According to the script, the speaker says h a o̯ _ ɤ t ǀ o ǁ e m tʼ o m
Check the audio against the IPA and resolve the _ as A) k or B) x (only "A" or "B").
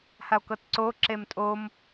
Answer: A